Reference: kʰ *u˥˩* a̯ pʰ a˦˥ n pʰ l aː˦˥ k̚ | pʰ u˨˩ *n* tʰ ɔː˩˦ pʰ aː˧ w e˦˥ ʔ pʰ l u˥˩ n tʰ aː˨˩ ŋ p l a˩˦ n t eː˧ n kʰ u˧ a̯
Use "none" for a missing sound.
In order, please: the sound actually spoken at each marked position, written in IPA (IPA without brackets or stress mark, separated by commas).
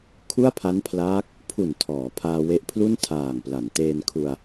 u˥˩, n